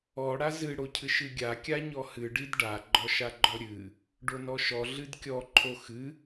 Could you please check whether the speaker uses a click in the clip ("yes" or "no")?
yes